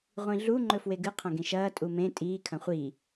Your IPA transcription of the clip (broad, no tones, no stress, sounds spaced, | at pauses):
ʁʷ ĩ ɮ u ŋ͡ǃ ɵ f w e ɡ ɨ qʰ ɐ̃ ɡ ĩ ʃ ɐː tʼ u m ẽ tʼ iː kʰ ɐ̃ χʷ i